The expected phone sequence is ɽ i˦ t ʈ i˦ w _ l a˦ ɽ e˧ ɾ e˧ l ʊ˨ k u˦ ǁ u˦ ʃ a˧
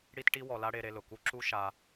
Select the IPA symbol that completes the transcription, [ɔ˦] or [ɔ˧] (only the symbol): ɔ˧